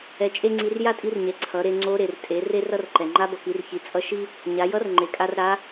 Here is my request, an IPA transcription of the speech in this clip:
ɛ˧ t͡ʃʼ e˥ ŋ͡ǀ i˧˥ r j a˥ tʼ i˧˥ r ɲ ɛ˩˧ ǀʰ ʌ˩˧ ɾ e˧ ŋ͡ǀ o˧˥ ɾ e˩ r tʼ e˩˧ r e˥ r ʌ˥ r ǃ ɛ˩ ŋ͡ǃ a˧˥ b ʌ˩ k i˩˧ r ç i˩˧ t͡sʼ ʌ˧˥ ʃ i˥ | ɲ a˩˧ j ʌ˧˥ r ŋ͡ǃ e˩ kʼ a˧ r ɾ a˧˥

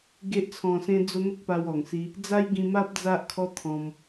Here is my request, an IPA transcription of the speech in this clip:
ɡ e˦ ʔ t͡sʰ ɔ̃˧ s ẽ˦ d͡z o˦ n̪ ə˦ k̚ p a˧ w ɔ˨˩ ŋ s i˧ | d͡z a˦ j ɡ ĩ˧ m a˦ p̚ d͡z a˦ ʔ kʰ ɔ˦ t̪ʰ ɔ̃˧ m

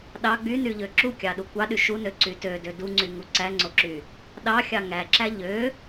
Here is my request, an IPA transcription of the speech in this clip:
ɗ ɑ ɡ͡b y n y ʎ ø ǁ u kʲ ɑ ɗ u kʷ ɑ ɗ y ʃ u n ø ǀ y t ø d ø d u ŋ͡ǀ y ŋ u ǀ æ ŋ͡ǀ o ǁ y | ɗ ɑ xʲ ɑ ŋ æ ǁ æ ʎ ø

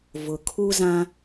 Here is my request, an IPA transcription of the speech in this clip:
v ʊ˨ kʰ u˦ z ã˦

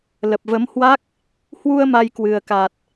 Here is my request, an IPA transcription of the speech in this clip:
l ə˨˩ p̚ v ə˨˦ m h w a˦˥ k̚ | h w u˧ ə̯ m a˧ j k w ɨ˨˩ ə̯ k a˨˩ t̚

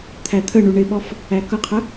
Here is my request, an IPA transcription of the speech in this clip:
t̪ʰ æ t̪ʰ ə ɳ u ɳ ɪ ɓ ɔ f | æ k ʌ qʰ ə

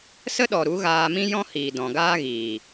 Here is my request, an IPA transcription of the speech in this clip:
s ə˦ ɗ ɔ˨ ɾ u˨˦ ɣ aː˧ m ĩ˦ j ɔ̃˦ h iː˨ d ɔ̃˨ ɡ aː˦ ɣ iː˨

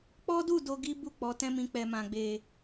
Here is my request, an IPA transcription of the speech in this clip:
k͡p ɔ˦ d u˦˨ d o˧ ɡ i˦ b u˦˨ k͡p ɔ˨˦ t ɛ̃˦ m ĩ˧ k͡p ɛ˨ m ã˨ ɡ͡b e˨

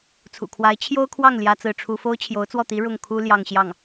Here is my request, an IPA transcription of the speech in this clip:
t͡sʰ ṵ˨˩ kʰ w a˧˥ ɪ̯ t͡ɕʰ j o˥ ʊ̯ kʰ w ɑ˥˩ ŋ l j ä˥ t͡s ɹ̩˥˩ ʈ͡ʂʰ u˥ f o˥ ʊ̯ t͡ɕʰ j o˧˥ ʊ̯ t͡s w ɔ˥˩ t̪ i˧˥ ɻ ʊ˥˩ ŋ kʰ u˥ l j ɑ˥˧ ŋ ɕ j ɑ˥˩ ŋ

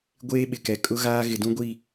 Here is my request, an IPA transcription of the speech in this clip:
ɡʷ eː˦ ɓ ɪ˨ k ɛ˨ kʼ ʊ˦ ɣ aː˦ ɣ ɪ˨ d ũ˦ ɡʷ i˦˨

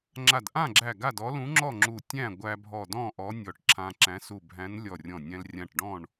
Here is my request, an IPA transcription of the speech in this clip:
ŋ͡ǁ a˧˩ d ʔ ã˥˨ ɡ͡ǁ æ˧˩ ɡ a˥˨ d ɔ˧˥ l ũ˧˥ ŋ͡ǁ ɔ˥˨ ŋ͡ǁ u˧˩ tʲ æ̃˥˨ ɡʷ æ˧ bʱ ɔ˧˩ d ɔ̃˥˨ ʔ ɔ˧˥ nʲ ɔ˧˩ ʈ ǁʰ ã˧ ǁ æ̃˧˥ s u˧˩ bʱ æ̃˧˥ n lʲ ɔ˧˩ rʲ ɔ̃˧˩ nʲ æ̃˧ l rʲ ã˧˩ ʈ ɖ ɔ̃˥˨ ɳ

